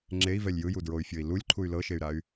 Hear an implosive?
no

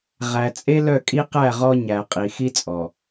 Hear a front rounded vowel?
yes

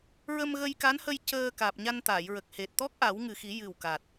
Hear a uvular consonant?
no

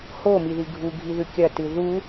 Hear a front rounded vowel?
no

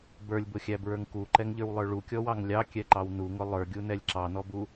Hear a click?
yes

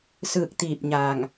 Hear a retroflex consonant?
no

